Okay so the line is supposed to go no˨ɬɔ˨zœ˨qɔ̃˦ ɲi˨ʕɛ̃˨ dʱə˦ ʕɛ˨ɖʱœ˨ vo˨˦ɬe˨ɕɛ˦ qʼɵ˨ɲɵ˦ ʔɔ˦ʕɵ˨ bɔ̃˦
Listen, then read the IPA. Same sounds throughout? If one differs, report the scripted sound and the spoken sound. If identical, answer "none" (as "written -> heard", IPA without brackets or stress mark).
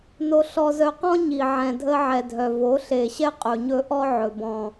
ɖʱ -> dʱ